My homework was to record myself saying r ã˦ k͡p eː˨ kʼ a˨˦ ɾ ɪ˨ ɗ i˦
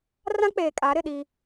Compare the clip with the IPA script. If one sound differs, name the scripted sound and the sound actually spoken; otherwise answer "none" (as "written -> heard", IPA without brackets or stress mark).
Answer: none